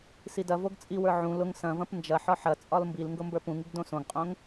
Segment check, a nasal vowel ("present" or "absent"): present